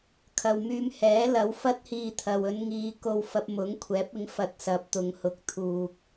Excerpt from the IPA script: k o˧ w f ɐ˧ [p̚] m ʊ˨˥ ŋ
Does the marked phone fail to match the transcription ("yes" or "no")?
no